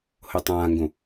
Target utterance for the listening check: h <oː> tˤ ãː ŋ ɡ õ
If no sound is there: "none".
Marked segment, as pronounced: o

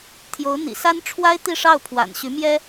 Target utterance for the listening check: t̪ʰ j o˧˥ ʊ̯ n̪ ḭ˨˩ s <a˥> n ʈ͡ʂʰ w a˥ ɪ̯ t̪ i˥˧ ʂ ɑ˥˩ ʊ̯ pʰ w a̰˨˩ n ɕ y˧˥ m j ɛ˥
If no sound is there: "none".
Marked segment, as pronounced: a˥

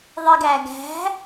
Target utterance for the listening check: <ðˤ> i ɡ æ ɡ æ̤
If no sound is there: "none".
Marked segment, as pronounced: ðˤ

